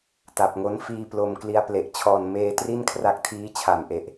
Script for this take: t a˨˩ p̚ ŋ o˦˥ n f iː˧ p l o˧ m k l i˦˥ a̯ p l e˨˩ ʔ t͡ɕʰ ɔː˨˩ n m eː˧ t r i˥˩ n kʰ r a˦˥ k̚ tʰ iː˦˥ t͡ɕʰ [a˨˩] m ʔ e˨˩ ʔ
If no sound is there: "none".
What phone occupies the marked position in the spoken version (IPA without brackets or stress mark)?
a˨˩